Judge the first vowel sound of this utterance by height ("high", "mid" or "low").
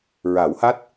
low